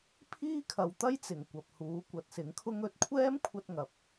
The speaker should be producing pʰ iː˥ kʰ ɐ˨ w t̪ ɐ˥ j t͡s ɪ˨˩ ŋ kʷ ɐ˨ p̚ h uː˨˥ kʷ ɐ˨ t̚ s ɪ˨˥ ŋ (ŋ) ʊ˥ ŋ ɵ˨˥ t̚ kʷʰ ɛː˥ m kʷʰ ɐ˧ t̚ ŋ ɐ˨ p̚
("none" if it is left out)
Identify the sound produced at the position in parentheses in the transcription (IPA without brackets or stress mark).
kʰ